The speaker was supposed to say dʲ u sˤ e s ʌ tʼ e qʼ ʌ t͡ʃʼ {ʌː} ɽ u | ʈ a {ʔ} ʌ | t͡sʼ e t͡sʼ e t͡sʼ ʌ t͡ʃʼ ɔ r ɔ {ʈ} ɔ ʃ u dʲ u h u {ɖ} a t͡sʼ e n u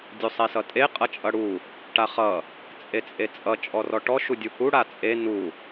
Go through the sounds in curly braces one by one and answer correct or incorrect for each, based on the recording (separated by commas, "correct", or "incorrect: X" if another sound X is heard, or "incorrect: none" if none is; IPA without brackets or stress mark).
incorrect: ʌ, incorrect: χ, correct, incorrect: ɽ